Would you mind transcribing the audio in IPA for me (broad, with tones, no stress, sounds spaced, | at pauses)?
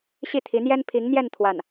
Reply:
ɕ i˥˩ t̪ʰ i˧˥ n̪ j ɛ˥ n pʰ i˧˥ ŋ n̪ j ɛ˥˧ n t̪ʰ w a˥˩ n